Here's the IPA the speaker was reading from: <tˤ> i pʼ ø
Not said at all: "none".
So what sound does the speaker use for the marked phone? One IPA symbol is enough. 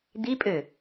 d̪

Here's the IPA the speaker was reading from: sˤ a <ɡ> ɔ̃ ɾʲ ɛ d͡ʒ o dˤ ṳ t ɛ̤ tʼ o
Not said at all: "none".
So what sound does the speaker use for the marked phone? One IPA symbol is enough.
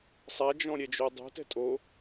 d͡ʒ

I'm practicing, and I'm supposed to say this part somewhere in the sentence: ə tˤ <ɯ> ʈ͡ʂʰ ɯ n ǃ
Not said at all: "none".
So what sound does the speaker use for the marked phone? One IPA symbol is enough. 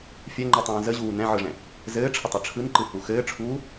ɯ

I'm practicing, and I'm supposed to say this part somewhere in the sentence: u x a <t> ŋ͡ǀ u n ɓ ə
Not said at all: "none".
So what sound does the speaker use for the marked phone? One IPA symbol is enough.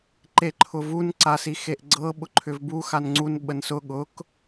n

